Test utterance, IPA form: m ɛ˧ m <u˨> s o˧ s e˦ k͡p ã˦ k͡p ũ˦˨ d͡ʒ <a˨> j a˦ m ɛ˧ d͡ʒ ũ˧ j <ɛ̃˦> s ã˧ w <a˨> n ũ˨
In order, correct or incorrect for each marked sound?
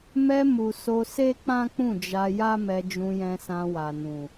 correct, incorrect, incorrect, correct

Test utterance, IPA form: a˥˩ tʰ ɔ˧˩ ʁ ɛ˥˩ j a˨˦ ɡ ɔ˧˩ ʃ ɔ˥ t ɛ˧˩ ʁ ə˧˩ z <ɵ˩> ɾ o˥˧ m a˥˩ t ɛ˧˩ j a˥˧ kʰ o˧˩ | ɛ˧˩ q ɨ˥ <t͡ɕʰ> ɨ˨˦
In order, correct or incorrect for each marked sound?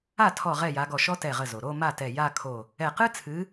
incorrect, incorrect

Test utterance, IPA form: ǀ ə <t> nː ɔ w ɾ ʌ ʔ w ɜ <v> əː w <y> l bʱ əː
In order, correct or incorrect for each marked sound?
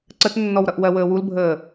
correct, incorrect, incorrect

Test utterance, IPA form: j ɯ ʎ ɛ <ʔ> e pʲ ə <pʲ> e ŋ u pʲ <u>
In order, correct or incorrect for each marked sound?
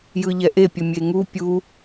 correct, incorrect, correct

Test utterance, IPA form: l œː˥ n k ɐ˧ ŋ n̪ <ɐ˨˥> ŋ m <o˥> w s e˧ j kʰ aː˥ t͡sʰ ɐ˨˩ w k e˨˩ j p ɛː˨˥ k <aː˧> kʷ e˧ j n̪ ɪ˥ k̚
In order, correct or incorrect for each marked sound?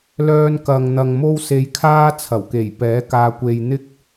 incorrect, correct, correct

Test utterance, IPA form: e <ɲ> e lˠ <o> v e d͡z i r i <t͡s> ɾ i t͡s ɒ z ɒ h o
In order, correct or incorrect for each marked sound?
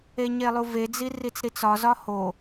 correct, incorrect, correct

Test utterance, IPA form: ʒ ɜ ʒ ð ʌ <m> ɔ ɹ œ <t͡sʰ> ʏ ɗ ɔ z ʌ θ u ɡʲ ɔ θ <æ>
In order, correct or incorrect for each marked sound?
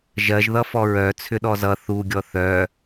incorrect, correct, incorrect

